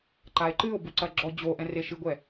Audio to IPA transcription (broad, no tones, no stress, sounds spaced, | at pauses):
ǃ a e̯ ǃ ɨ o̯ b u ǀ ɐ ɡ͡ǁ ɔ d͡ʑ o ʔ ɛ̃ r e ʃ ɨ ɡʷ ɛ